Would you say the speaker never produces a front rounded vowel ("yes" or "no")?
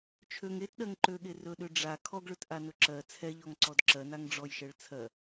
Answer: no